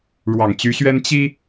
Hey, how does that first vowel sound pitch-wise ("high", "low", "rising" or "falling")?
low